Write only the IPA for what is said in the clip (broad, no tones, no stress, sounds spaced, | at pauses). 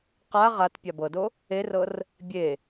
q a ʁ a t pʲ a b ɤ d o | e r ɤ r | bʲ e